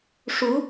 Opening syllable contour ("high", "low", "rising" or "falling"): rising